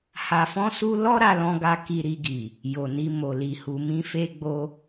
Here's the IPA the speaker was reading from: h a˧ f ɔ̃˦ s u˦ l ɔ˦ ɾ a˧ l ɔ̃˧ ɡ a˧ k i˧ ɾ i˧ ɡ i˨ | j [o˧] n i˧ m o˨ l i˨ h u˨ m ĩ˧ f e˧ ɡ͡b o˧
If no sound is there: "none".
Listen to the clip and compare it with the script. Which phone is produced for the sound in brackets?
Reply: o˨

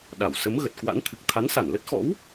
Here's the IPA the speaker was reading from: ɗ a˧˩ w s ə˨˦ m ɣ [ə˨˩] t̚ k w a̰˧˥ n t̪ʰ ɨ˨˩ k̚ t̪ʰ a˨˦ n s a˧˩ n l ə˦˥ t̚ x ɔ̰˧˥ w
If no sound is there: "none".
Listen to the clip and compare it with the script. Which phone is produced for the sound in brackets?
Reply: ə˨˩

